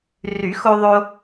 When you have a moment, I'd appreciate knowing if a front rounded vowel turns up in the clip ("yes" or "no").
yes